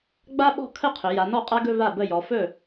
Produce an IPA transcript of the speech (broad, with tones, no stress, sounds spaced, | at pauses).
ɡ͡b a˥ ɓ ɔ̤˥˩ kʰ ə˥˩ qʰ ɵ˩˧ j a˩˧ n ɔ˥˩ qʼ a˥ ɡ ɵ˥˧ v a˥˩ b ə˥˩ j ɔ˩˧ f ɵ˥˩